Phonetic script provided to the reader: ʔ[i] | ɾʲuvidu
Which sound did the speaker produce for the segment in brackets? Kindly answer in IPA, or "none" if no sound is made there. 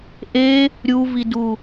e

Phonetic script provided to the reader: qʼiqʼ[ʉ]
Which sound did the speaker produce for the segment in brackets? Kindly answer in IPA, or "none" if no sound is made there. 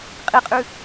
ʉ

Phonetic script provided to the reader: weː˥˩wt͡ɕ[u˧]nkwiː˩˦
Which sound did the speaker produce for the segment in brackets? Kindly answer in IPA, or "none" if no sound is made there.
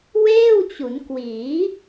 u˩˦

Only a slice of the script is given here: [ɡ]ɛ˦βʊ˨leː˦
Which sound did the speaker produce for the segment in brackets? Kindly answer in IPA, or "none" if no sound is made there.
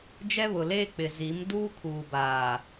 d͡ʒ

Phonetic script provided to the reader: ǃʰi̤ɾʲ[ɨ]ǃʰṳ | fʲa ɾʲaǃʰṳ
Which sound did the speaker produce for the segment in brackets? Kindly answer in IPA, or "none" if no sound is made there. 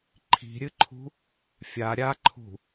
ɨ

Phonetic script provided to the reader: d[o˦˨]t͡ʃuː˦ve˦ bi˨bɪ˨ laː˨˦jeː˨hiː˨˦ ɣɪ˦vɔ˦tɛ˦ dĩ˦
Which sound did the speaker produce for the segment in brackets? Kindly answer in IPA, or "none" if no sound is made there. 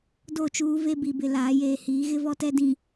o˦˨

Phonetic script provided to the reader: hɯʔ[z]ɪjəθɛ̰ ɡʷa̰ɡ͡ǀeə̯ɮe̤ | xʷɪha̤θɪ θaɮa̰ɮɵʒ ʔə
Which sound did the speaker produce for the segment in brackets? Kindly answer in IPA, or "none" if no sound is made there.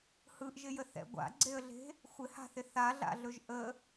ʒ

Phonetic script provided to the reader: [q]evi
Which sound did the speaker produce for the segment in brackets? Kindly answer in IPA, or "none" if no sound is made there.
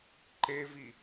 ǃ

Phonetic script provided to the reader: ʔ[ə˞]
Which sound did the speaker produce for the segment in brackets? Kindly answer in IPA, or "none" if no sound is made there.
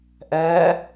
ɜ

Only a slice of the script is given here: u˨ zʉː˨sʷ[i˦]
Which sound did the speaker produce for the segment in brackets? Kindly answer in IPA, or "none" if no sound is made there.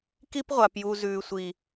i˨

